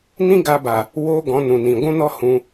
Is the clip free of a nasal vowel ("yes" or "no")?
no